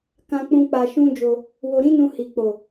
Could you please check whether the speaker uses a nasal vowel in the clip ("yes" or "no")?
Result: yes